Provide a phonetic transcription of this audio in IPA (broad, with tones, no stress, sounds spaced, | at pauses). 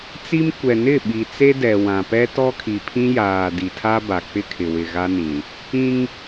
t͡s i˦ m kʷ ɛ˨ n ɪ˦˨ ɓ i˨ t͡s e˦ d ɛ˨ w ã˨ p ɛ˦ t ɔ˦ kʰ i˨ pʰ ĩ˦ j aː˨ d i˨ tʰ a˦ b a˨ k͡p ɪ˦ kʰ ɪ˨ w ɪ˨ ɣ a˦ n ĩ˨ | ĩ˦ ŋ